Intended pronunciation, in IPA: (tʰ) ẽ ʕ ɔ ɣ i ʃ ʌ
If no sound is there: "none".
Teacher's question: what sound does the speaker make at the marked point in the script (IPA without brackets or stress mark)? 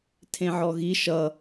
tʰ